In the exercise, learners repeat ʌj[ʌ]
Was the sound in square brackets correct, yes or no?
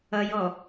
no